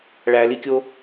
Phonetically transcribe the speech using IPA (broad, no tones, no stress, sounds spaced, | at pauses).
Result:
ɭ æ l i kʲ o